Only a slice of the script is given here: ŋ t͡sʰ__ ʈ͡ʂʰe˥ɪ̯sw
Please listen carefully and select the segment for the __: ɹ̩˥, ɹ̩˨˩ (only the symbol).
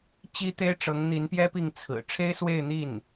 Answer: ɹ̩˨˩